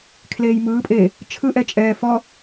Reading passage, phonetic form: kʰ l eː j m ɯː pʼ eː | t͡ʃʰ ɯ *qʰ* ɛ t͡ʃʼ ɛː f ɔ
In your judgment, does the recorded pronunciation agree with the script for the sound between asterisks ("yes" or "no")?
no